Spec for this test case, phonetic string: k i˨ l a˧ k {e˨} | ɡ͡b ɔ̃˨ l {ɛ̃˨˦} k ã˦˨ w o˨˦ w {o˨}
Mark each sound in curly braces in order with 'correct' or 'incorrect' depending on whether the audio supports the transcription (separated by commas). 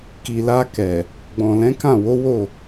incorrect, correct, incorrect